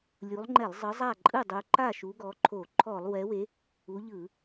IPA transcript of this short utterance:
lʲ u˨˦ lˠ ŋ͡ǃ ɛ˧˩˧ lˠ zˤ ɯ˨˦ zˤ a˥˩ ǃʼ ɯ˥˩ dˤ u˨˦ ǃ a˥˩ ʃ u˨˦ ɡ ɔ˨˦ ǃʰ o˧˩˧ ǃʰ ɔ˧˩˧ lˠ w ɛ˨˦ w e˨˦ | u˨˦ ʎ ɯ˧˩˧

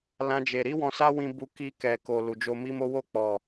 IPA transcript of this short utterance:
l ã˦ d͡ʒ e˧ ɾ i˦ w ɔ̃˧ s a˦ w ĩ˧ b u˧ k i˧ k ɛ˨ k o˨ l u˨ d͡ʒ o˧ m i˦ m o˦ w o˦˨ k͡p ɔ˨

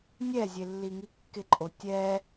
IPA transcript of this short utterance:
nʲ ɛ zʲ e lː i ŋ i kː ɪ ǃʼ o tʲ ɛ

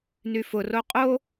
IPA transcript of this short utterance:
n y f ʊ r o qʼ o

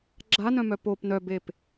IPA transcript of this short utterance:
ɡ͡ǁ a n œ̃ m œ p o p n œ b e p

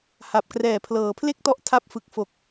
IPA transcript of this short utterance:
h a˨˩ p̚ k r ɛː˨˩ pʰ l ɤː˩˦ pʰ l e˥˩ k̚ t ɔ˦˥ ʔ tʰ a˦˥ p̚ f ɯ˨˩ k̚ f o˨˩ k̚

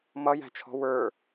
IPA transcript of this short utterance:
m ʌ j æ̤ t͡ʃʰ ɔ̤ w ə˞

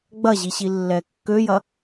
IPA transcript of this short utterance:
ɡ͡b ɐ ʑ i ɕ i lː ɛ kː ø j ɐ

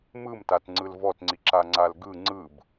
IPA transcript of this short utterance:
m ɯ m t a t ŋ͡ǀ ɯ l v ɔ t ŋ͡ǀ i ǁ a ŋ͡ǀ a l ɡ ɯ ŋ͡ǀ ɯ b

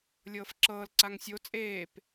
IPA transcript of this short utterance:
lʲ ɤː f ǁ ɤː l ǀ a ŋ sʲ o t͡sʼ eː p

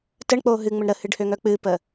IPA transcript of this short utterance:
t ə ɳ k͡p o ɦ ɨ ŋ͡m ə ɳ ɾ ə h ɨ ɖ h ø ŋ œ k͡p ɨ p ə

